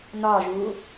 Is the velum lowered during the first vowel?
no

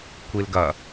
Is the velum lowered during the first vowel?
no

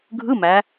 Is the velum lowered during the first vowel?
no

